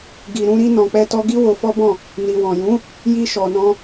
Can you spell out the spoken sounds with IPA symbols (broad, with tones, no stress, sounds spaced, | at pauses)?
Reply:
ɡ i˨ ɾ ũ˧ ɾ i˧ n ɔ̃˨ k͡p ɛ˧ t ɔ˧ ɡ i˦ w o˧ f ɔ˦ b ɔ̃˦˨ | n i˨ w ɔ̃˨ j ũ˨˦ | j i˧ ʃ ɔ˨ n ɔ̃˧